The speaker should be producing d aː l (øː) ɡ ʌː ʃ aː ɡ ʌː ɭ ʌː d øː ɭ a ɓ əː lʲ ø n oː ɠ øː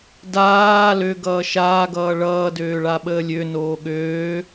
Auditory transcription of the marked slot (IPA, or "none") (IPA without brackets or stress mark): ø